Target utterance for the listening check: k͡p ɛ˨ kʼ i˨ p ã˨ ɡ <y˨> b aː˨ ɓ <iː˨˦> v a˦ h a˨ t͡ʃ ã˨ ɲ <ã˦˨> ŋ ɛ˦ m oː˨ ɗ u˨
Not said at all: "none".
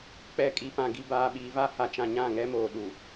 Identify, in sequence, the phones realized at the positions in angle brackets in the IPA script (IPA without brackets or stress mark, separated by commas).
i˨, iː˨, ã˦˨